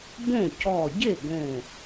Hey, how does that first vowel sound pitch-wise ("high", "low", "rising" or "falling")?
falling